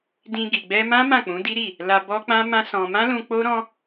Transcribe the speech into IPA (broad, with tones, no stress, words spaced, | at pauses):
dĩ˧ɡi˨ ɡ͡bɛ˧mã˦ mã˦˨k͡pũ˨˦di˦ɾi˦˨ | la˧bɔ˦k͡pã˦ mã˦sɔ̃˧ mã˦lũ˧ k͡po˦ɾɔ̃˦